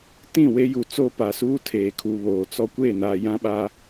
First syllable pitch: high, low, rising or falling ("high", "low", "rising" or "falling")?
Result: falling